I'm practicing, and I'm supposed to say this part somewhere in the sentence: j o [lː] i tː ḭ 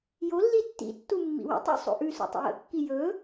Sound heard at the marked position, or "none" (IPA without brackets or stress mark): lː